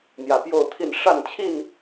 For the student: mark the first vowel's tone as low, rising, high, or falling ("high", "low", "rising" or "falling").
low